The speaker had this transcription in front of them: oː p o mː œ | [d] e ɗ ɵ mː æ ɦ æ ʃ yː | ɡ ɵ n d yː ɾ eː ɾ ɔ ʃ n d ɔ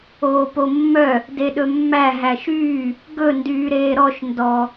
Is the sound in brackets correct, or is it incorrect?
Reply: correct